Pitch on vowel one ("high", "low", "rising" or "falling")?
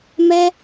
high